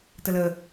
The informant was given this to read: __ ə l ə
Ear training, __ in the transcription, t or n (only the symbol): t